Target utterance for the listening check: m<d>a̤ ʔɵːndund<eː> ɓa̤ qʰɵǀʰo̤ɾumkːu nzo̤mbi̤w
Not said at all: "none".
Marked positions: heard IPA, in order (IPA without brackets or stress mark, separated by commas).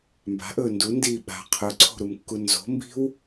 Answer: b, iː